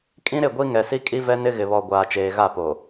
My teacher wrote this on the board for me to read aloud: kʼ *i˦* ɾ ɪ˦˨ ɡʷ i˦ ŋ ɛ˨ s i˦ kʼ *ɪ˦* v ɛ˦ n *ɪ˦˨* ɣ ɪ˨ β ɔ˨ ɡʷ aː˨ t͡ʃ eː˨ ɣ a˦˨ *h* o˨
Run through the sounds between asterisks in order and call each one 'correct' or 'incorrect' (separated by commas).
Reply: incorrect, incorrect, incorrect, incorrect